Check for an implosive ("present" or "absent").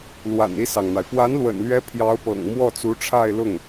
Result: absent